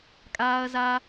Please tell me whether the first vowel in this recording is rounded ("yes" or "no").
no